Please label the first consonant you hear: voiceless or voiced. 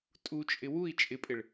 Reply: voiceless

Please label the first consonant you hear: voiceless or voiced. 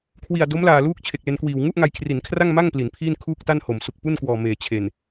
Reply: voiceless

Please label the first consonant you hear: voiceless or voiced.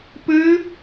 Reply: voiceless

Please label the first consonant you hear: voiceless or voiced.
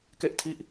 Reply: voiceless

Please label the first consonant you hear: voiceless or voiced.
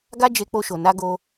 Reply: voiced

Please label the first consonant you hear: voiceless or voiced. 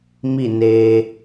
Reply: voiced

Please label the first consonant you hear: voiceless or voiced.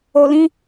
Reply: voiced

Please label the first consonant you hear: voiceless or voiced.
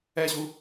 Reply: voiceless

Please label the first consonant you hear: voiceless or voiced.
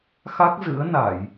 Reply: voiceless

